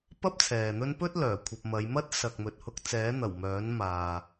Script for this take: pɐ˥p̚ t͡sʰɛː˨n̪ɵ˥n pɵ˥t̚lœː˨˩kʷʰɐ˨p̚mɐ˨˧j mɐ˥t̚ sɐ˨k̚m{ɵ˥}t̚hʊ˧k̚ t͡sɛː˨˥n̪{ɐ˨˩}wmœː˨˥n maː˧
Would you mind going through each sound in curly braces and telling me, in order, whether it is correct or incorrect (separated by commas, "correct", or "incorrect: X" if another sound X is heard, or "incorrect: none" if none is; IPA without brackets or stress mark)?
incorrect: ɵ˨, correct